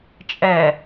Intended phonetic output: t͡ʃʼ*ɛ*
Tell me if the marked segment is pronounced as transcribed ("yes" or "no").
yes